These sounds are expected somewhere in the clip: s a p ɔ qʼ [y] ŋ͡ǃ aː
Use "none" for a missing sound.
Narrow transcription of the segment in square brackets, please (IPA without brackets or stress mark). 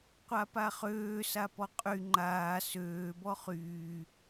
y